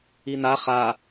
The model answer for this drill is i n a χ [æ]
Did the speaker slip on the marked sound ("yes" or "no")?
yes